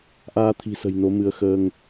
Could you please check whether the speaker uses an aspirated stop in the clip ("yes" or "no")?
yes